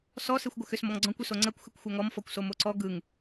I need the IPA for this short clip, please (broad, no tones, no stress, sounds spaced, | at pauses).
s ɔ s e xʷ ɡʷ ə x ʏ s m ɔ ŋ ɡ͡ǀ ɔ̃ kʷ ʏ s o ŋ͡ǀ ɜ kʷ x ɯ kʷ xʷ ɜ ŋ ɔ m f ɔ kʷ s o m o ǀ ɔ ɡ ɯ ŋ